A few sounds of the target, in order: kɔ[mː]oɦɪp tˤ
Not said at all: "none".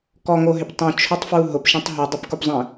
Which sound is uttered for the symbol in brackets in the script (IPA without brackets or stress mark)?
ŋ